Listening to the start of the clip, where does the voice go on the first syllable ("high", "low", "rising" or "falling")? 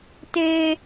high